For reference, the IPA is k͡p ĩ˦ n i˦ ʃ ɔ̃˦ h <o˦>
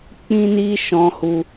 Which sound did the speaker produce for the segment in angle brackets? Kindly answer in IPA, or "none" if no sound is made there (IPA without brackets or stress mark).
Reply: u˦